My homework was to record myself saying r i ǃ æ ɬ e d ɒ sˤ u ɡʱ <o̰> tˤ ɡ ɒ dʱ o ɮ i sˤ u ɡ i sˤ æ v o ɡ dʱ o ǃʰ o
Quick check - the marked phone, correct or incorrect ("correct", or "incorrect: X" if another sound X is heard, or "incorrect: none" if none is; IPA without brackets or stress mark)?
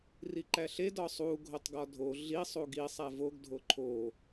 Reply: incorrect: o